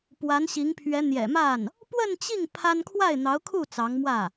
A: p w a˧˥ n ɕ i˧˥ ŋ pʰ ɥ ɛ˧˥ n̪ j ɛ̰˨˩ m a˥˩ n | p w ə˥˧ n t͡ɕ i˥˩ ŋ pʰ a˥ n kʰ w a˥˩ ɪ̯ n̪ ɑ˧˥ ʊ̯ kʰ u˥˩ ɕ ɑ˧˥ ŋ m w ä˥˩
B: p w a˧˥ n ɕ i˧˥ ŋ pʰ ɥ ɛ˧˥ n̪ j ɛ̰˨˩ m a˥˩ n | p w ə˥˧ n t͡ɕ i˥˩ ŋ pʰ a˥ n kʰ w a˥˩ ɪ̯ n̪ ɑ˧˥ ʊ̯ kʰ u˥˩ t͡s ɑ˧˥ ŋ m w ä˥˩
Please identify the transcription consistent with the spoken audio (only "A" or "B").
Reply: B